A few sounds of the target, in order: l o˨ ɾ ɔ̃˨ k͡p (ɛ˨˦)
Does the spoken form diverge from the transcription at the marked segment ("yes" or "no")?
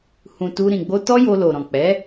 no